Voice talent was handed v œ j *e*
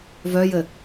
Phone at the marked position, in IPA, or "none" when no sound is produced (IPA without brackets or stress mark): ɘ